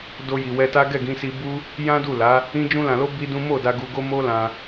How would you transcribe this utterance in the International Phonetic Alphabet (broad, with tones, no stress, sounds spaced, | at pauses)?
d o˧ j i˨ w ɛ˧ t a˦ ɡ ɛ˦˨ ɡ ĩ˧ s i˧ b u˦ | j ã˦ d u˦˨ l a˨˦ | ĩ˦ d͡ʒ ũ˧ l ã˨ l o˧ b i˦ d ũ˦ m o˦˨ d a˧ ɡ u˧ ɡ o˦ m o˦ l ã˧